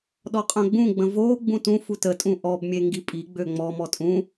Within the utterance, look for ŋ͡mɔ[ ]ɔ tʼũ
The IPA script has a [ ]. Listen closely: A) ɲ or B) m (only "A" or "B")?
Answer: B